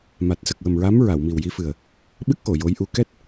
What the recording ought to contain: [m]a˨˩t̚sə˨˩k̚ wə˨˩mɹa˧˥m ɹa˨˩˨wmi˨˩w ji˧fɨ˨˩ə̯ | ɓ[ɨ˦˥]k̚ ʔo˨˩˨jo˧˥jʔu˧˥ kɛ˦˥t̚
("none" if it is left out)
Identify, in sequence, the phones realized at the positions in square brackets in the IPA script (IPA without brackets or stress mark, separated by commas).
m, ɨ˦˥